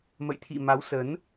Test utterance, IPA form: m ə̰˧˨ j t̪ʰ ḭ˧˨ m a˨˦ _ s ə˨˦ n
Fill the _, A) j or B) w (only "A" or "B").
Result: B